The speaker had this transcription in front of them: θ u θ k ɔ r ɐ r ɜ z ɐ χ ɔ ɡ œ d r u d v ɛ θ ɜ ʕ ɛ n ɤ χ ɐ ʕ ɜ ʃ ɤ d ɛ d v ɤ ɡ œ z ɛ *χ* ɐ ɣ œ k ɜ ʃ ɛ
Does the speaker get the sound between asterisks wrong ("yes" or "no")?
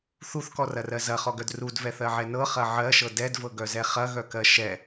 no